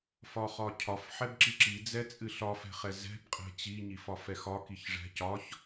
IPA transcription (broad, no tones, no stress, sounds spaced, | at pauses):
f ɒ χ ɒ cʰ ɒ f ħ ɛ b ǁ i ǁ i d͡z ɛ t͡sʼ ɨ ɬ ɒ f ɛ̤ χ ɛ z ɛ̤ b qʼ ɛ̤ t͡ɕ i ɲ i f ɒ f ɛ x ɒ k i ç ʐ ɛ̤ c ɒ ç